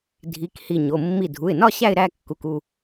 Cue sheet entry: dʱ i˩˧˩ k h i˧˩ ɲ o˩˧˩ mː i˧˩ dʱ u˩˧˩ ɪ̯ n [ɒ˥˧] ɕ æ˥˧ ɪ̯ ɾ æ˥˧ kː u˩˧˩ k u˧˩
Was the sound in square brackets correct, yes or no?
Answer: yes